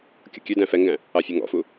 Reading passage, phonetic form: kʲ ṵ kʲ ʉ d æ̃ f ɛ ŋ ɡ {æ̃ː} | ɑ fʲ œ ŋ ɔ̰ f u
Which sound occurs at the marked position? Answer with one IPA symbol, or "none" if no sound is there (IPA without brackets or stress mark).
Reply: æ̃